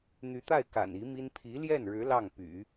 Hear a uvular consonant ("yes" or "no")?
no